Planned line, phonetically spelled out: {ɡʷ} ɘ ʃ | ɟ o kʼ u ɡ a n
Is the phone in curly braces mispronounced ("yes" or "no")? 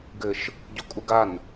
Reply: yes